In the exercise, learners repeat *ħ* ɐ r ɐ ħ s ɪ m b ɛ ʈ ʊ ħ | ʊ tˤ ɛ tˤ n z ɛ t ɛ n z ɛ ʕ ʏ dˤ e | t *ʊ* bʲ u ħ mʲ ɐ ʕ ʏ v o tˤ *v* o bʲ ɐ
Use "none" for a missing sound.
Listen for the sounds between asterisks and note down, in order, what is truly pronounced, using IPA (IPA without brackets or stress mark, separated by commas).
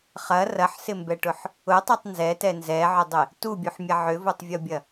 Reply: χ, u, vʲ